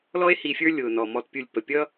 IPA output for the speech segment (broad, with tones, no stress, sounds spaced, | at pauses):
l ɔ˦ e̯ h i˨ fʲ ə˞˦ lʲ ʊː˩ n ɔ˩ m ɔ˨ t pʲ u˨ lʲ p ə˩ pʲ ʌː˥